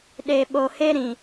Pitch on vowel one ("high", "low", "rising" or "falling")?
low